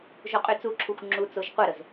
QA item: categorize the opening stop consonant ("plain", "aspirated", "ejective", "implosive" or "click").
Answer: ejective